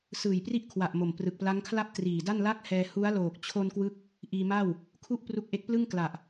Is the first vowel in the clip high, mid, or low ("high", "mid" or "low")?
high